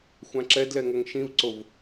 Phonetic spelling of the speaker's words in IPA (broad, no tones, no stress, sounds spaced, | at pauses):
xʷ ã ǁ ɛ d l ɛ ŋ ʌ ŋ ʃ ĩ v ǀ o v